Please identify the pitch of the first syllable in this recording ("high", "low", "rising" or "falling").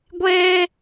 high